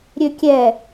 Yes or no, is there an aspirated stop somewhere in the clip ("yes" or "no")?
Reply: no